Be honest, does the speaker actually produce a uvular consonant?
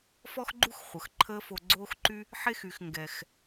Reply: yes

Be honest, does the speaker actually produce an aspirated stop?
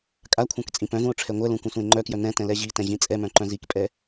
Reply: yes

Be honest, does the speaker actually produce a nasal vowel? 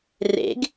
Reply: no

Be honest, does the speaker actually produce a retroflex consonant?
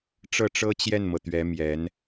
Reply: yes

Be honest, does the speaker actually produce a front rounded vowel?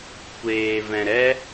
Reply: no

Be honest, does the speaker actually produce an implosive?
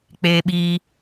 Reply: yes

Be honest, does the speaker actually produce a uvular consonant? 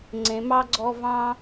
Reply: no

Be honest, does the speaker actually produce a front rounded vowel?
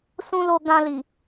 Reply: no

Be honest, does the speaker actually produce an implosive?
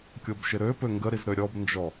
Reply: no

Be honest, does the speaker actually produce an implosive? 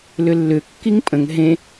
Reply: no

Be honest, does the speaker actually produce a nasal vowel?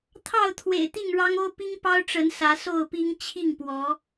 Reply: no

